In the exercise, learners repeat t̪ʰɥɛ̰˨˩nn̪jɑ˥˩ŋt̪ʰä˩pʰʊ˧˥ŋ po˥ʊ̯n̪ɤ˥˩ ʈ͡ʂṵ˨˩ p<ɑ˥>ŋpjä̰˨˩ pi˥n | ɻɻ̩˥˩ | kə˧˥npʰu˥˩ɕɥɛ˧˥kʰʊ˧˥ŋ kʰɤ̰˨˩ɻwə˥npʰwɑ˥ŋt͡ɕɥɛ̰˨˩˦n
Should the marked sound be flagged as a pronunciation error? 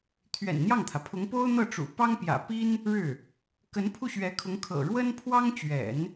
no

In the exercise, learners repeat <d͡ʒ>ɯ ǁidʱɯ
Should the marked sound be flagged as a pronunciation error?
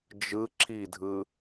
no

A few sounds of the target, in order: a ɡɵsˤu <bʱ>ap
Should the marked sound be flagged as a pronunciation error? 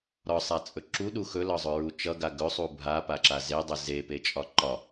no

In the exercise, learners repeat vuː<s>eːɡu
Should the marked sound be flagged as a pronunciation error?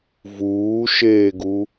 yes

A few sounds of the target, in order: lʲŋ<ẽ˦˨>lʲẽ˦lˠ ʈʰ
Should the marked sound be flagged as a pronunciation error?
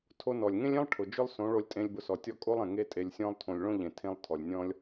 yes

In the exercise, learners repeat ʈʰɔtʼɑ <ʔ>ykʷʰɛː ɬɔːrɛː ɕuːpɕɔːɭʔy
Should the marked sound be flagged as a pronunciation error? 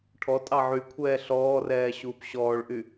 yes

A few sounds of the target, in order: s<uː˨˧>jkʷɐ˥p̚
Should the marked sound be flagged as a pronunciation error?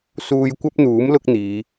yes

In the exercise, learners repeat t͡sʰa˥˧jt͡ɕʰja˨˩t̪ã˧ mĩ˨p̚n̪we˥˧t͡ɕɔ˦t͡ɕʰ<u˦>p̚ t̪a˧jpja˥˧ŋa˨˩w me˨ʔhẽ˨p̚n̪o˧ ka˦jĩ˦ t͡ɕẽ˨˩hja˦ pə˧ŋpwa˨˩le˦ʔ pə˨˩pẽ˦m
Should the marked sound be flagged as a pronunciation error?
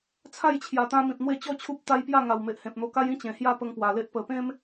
no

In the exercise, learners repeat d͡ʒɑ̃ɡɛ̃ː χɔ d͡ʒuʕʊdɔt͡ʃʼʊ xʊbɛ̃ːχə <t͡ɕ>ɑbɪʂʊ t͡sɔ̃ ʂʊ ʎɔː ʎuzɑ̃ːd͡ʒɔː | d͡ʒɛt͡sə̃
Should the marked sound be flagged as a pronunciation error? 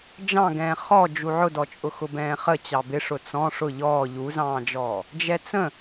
no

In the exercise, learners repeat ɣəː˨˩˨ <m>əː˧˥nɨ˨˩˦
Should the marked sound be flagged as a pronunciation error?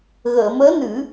no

